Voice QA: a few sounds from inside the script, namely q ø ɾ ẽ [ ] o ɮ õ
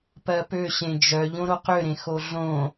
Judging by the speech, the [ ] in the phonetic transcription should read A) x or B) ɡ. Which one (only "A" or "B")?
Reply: A